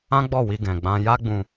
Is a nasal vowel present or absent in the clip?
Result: present